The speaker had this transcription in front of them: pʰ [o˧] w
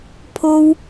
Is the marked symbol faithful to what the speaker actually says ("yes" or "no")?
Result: yes